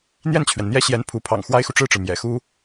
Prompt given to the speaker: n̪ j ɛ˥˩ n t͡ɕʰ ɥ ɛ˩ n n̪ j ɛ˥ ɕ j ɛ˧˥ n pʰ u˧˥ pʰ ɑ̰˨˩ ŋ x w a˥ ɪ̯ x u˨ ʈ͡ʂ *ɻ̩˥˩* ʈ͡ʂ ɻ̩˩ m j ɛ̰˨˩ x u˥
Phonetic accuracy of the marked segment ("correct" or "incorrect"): correct